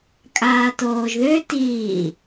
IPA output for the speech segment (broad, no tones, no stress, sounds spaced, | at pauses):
kʼ aː t oː ʒ ð ø t iː